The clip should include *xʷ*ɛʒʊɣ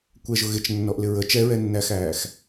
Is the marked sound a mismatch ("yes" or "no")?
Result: yes